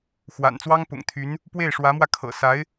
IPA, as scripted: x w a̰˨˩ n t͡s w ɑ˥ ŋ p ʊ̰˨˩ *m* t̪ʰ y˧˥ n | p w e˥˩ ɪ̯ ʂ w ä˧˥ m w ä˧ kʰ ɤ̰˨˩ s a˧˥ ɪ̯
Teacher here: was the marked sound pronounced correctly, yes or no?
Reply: no